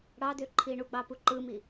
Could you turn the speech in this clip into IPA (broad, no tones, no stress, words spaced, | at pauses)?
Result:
ɽɑdøǃʰi ɳuɡ͡bɑpu ǃɯmi